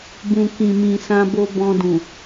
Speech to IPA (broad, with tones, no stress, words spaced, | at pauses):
bũ˨kĩ˨mĩ˨ sã˧bo˧ bɔ̃˧dũ˨